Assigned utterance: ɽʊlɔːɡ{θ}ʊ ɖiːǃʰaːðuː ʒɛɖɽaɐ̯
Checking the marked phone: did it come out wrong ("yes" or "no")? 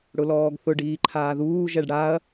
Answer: no